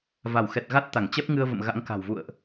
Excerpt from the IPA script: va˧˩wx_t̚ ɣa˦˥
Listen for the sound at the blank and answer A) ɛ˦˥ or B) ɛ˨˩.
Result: B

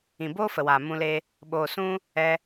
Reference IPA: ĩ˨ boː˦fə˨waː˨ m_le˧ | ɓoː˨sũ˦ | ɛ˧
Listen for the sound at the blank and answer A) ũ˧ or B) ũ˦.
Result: A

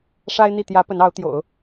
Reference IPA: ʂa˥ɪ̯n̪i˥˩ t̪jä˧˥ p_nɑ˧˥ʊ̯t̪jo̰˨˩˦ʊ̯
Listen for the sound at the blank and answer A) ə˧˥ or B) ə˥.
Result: A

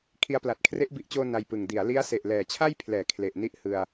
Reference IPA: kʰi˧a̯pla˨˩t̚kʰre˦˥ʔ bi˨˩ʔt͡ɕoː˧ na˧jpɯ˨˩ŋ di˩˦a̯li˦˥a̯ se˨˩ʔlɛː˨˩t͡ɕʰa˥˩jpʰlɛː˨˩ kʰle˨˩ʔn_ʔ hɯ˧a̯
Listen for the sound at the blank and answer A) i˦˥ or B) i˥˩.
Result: A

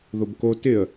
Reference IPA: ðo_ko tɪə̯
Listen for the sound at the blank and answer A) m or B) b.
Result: B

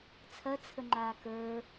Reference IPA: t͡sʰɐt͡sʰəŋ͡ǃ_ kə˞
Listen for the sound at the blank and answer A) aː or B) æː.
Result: A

